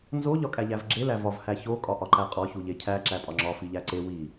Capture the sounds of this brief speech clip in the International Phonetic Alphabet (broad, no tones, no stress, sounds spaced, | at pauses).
n z o ʎ ɒ kʼ æ ʎ æ v ɡ͡ǁ e l æ v ɒ v h æ ç o kʼ ɒ ʔ ɒ ǃ æ qʼ ɒ ç u ʎ e cʰ æ ǁ æ pʼ ɒ ŋ͡ǁ ɒ f i ʎ æ ǀ e w i